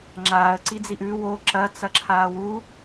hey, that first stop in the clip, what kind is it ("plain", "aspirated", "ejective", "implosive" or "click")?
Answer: click